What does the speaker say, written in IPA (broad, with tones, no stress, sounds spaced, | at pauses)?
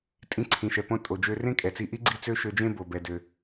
tʼ ĩ˧ ǀʰ ĩ˩ ʃ ɛ˩ p õ˧ tʼ o˩ d͡ʒ ø˧ r ẽ˥ kʼ ɛ˩ t͡s i˧ ʔ i˥ ɡ͡ǀ i˥ t͡s ø˥ ʃ ø˧ d͡ʒ ẽ˥ b o˩ b ɛ˩ d ø˩